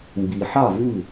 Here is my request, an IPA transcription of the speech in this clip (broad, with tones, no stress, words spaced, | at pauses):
mbi˨ħɑ˥˨ vʉ˥˨